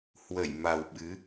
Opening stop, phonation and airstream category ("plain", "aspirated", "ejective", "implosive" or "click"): implosive